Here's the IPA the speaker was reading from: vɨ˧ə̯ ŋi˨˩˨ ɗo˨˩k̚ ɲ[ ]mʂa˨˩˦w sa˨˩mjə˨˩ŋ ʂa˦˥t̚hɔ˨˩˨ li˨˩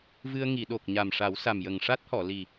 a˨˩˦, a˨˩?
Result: a˨˩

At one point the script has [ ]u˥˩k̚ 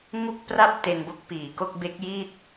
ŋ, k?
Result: ŋ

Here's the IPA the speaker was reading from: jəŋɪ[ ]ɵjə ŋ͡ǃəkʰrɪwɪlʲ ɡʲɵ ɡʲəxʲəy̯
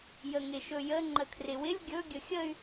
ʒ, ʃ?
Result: ʃ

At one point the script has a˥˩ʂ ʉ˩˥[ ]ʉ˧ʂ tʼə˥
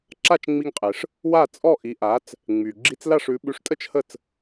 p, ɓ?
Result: ɓ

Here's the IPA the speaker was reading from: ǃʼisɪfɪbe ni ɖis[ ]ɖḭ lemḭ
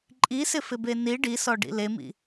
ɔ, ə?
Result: ɔ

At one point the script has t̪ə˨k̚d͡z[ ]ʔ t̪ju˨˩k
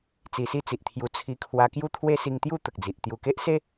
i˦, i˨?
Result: i˨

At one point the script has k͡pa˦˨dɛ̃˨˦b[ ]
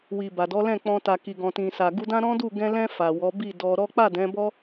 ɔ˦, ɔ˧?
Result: ɔ˦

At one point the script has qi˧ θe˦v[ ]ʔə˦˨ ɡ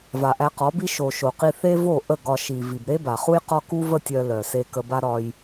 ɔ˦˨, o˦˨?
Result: o˦˨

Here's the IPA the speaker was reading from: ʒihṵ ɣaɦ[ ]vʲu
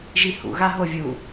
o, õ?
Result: o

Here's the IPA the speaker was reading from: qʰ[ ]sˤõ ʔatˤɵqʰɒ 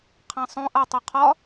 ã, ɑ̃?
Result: ã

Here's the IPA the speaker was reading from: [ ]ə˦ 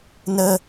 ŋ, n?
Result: n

